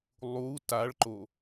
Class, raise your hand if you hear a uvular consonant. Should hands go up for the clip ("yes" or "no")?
no